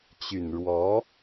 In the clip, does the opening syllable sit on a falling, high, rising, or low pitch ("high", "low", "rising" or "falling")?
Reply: low